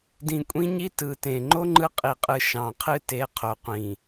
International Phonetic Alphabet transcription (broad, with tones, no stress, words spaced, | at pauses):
dĩ˨kʷʼĩ˦ɲi˦ tɯ˨tẽ˨ ŋ͡ǃo˦ ŋ͡ǃɯ˦qʼi˨qʼɯ˨ ʃɑ̃˨qʰɨ˦te˨˦ qʰo˨qʷĩ˨